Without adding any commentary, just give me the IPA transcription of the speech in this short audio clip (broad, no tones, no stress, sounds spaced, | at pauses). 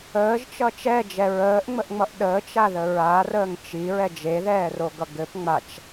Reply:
əː ʒ t͡ʃ ʌ t͡ʃ ɛ d͡ʒ ɛ ɹ əː ʔ ŋ͡m ə ʔ ŋ͡m ʌ ʔ ɗ əː t͡ʃ a ð ə ɹ a r əː ŋ t͡ʃ i ɹ ɛ d͡ʒ e ð ɛː r o ɡ ʌ ɡ ɘ p ŋ͡m a t͡ʃ